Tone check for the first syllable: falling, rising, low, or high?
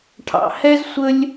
low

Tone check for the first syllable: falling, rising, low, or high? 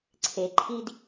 low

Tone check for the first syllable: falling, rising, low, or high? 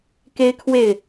high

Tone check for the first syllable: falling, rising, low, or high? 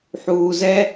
low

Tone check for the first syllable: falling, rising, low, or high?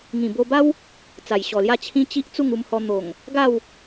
low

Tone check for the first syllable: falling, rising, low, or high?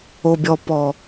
high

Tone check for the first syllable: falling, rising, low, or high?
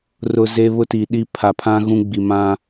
low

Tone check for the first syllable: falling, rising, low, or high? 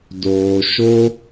low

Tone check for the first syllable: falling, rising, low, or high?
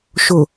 low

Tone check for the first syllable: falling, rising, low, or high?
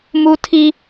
high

